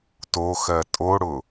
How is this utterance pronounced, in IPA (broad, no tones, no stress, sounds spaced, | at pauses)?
t o x ɜ tʼ o ɽ ʊ